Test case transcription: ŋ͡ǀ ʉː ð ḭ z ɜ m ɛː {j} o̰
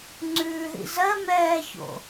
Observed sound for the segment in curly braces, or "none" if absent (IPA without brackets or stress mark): ç